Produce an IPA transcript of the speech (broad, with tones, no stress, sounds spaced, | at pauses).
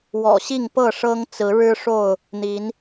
w ɔ̰˨˩ ɕ i˥˨ ŋ p ɤ˥˨ ʂ ɤ˦ ŋ t͡s ɹ̩˨˦ ɻ ɻ̩˦ ʂ o˥˨ ʊ̯ | n̪ i˨˦ n